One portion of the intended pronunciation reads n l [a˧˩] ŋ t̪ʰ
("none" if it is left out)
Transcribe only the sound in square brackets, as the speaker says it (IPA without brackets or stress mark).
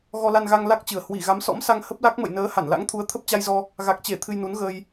a̰˧˥